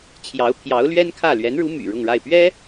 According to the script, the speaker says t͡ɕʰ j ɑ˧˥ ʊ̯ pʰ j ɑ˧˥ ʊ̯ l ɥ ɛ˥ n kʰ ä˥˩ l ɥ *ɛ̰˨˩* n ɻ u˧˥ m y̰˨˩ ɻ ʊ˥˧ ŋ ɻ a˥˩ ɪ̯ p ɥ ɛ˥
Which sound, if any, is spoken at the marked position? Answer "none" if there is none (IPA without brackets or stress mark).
ɛ˧˥